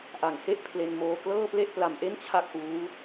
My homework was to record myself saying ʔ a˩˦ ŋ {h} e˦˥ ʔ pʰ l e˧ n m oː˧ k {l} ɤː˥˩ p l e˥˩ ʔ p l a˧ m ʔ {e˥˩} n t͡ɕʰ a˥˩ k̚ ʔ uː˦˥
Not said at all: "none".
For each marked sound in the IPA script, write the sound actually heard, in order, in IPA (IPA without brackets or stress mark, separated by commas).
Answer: h, l, e˥˩